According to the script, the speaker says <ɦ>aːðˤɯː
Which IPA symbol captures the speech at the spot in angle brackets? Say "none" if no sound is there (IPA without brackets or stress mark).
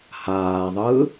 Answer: h